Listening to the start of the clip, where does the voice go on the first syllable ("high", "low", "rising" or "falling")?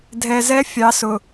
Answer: low